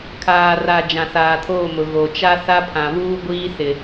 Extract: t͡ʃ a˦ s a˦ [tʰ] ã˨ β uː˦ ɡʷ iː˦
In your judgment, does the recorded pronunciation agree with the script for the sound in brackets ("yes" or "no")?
no